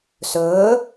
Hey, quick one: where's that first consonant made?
tongue tip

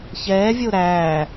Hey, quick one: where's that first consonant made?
palate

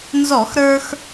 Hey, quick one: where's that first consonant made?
tongue tip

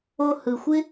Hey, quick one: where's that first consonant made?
throat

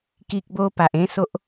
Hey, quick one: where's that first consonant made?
velum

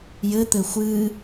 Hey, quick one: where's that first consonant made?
palate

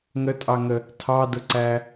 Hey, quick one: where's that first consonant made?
velum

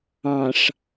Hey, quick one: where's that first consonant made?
retroflex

